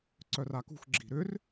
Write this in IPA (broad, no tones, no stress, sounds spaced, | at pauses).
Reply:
ǀ œ r a k ṳ x ɡ͡ǁ i̤ ɾ ʏ r